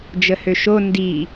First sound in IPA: d͡ʒ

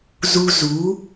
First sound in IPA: z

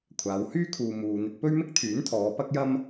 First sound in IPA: kʷʰ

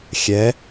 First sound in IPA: xʲ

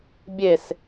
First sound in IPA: bʲ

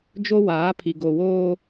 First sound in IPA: d͡ʒ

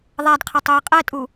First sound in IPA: ðˤ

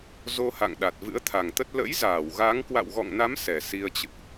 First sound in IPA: z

